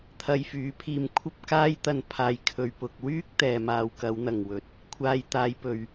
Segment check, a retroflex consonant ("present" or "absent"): absent